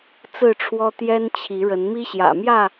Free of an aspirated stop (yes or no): no